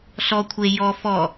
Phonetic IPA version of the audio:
ɬ ɔ kʷʰ e j ɔ f ɔ

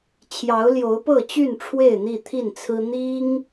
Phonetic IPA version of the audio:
t͡ɕʰ j ɑ˨˦ ʊ̯ l j o˨˦ ʊ̯ p ɤ˥˨ t͡ɕ y˥˨ n ʈ͡ʂʰ w e˥˨ ɪ̯ n̪ i˥˨ t̪ʰ i˥˨ n t͡sʰ ɹ̩˦ n̪ i˦ ŋ

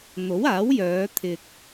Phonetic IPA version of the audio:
n̪ o˨˥ w aː˨˥ w j œː˨˧ t̪ʰ ɪ˧ k̚

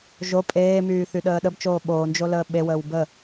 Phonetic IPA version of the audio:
ʒ o pʼ eː m yː θ y ɗ əː ɗ ə b t͡ʃ oː ɓ oː n d͡ʒ o l əː ɓ e w əː w b ə

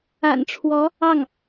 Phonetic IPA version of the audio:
a̰˨˩ n ʈ͡ʂʰ w ɔ˧˥ | ɑ˥˩ ŋ

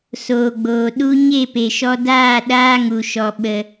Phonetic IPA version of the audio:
s oː˨ ɡ͡b oː˨ ɗ u˦ ɲ e˦˨ p e˨ ʃ ɔ˧ d aː˦˨ ɗ aː˦ ŋ u˨ ʃ ɔ˨ ɓ ə˨

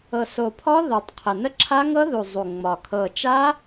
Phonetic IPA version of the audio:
ɤ˨˩ s o˨˩ pʰ ɔ˦˥ ð o˨˩ tˤ qʰ ə˨˩ n ə˦˥ ǁʰ a˦˥ ŋ ɤ˦˥ ð u˨˩ zˤ u˨˩ ŋ͡m ɒ˨˩ kʰ ɤ˨˩ t͡ʃ a˦˥

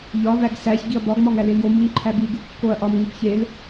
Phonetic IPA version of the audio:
ʎ ɒ β æ ɡ s æ ç ɡ i ɐ̯ b ɒ ɡ m ɒ ŋ æ l e l j o m u ŋ ǃʰ æ b i ɡ u kː o ɐ̯ ʔ ɒ m ŋ u b ç e l

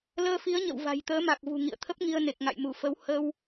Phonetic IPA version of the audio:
l əː˧ f i˨˦ ə̯ ɲ ə̰˧˨ w v a̤˨˩ j t̪ əː˨˦ m a˨˩ k̚ v ṳ˨˩ ŋ ḭ˧˨ ə̯ t̪ʰ ə˦˥ p̚ ŋ i˧ ə̯ n e˨˩ k̚ ŋ a̰˧˨ j m u˧˩ f ə˨˦ w h ə˧ w

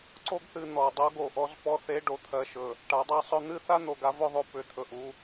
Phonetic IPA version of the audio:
ǀ o˦ ɡ θ ɨ˨ n̪ ɔ˨ dˤ o˦ ɡ o˨ ʔ ɔ˦ z p ɔ˦ θ e˦ ɖ o˨ t̪ʰ ɜ˨ ʃ ɵ˨ | ʈ a˨˦ dˤ a˦ sˤ ɵ˦ n̪ ɨ˦ θ a˦ n̪ o˨ ɡ a˦ v ɵ˦ ðˤ o˨ p ʏ˨˦ t̪ʰ ɵ˨ ʔ u˦

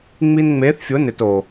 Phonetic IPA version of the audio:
ŋ͡m i˧ n ŋ͡m e˨˦ θ fʲ ʊ˨˦ n ɪ˨ t o˨

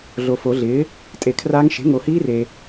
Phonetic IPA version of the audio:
ɮ o˨ f o˨˩˦ ɮ ɪː˩˥ | tʼ e˨˩˦ kʰ r aː˦˥ ŋ ʃ e̤˩˥ ŋ o˨ h iː˦˥ r e˨

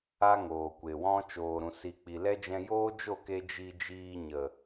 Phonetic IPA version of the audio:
a˦ ŋ oː˨ kʷ e˨ w ɔ̃˦ t͡ʃ oː˨ ɾ ũ˨ s i˨ k͡p i˨ l ɛ˦ d͡ʒ ɛ̃˧ j oː˦ d͡ʒ o˦˨ k e˧ d͡ʒ i˧ d͡ʒ iː˧ ɲ ə˨

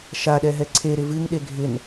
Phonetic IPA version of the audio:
ʃ a ɗ ɛ ɦ ɛ ǀʰ e ɾ ɪ v ɨ ŋ ɗ e ɡʱ ɪ n

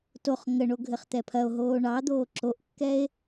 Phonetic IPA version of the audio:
t o χ ŋ ə ɳ o ɡʱ ɘ χ t̪ ɛ pʰ ɐ o̯ ɦ oː ɳ ɑ d̪ oː ǁ o ʔ kː ɛ e̯

